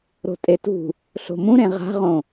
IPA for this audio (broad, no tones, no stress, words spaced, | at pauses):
ɾo̤tʼetṳ | ɬo̤mũɾẽ ʁa̤ʁõ